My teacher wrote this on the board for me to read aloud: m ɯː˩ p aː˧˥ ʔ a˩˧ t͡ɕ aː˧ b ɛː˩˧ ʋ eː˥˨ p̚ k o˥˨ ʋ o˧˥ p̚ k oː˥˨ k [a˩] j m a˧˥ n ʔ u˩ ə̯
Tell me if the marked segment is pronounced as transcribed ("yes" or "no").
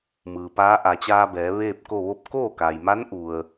yes